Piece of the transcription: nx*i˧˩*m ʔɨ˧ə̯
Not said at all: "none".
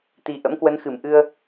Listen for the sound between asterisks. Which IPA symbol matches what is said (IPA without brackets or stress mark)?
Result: ɨ˧˩